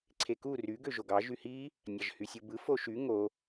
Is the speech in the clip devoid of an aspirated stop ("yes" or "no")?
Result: no